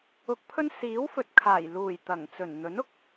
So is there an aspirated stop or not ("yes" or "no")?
yes